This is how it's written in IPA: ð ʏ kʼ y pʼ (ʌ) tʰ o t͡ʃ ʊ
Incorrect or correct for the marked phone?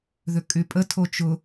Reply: incorrect: ə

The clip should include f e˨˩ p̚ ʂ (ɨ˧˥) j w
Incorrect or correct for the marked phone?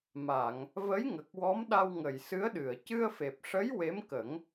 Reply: incorrect: ə˧˥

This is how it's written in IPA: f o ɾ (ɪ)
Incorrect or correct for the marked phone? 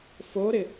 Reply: correct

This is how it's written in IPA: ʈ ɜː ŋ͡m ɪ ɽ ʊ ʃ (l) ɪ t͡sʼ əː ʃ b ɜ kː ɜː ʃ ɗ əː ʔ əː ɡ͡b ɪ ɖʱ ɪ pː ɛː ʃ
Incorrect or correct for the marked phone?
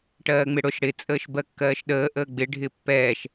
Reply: incorrect: ɽ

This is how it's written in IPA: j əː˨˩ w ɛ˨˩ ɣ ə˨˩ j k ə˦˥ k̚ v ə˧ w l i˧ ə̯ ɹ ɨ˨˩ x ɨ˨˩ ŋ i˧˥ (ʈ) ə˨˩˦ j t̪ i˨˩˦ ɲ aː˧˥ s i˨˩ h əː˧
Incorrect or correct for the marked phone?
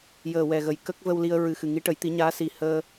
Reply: correct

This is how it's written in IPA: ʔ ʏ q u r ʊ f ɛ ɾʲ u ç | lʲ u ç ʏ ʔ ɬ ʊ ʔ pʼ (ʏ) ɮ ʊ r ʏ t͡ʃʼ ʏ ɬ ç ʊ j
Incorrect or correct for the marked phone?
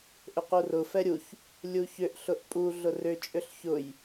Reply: incorrect: u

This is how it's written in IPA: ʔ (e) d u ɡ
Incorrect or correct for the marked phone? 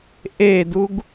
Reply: correct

